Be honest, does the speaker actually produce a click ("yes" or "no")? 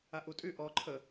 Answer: yes